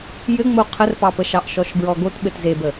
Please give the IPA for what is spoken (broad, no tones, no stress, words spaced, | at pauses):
jɘŋ͡mo qʰərpɑpəʃɑʔ ʃɔʃbɹɔɡot ɓɘtzebə